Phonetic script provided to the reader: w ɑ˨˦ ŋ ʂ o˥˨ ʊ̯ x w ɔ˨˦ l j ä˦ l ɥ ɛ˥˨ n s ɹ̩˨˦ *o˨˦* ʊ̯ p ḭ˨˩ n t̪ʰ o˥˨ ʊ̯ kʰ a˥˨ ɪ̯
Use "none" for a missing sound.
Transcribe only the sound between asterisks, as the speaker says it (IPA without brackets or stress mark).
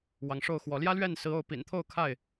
o˨˦